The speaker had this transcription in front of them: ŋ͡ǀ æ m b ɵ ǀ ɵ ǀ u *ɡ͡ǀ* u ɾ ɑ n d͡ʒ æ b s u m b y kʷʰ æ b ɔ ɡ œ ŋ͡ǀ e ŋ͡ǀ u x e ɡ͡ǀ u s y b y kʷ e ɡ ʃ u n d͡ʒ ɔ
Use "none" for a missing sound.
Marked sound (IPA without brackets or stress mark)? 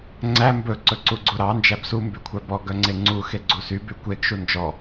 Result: ɡ͡ǀ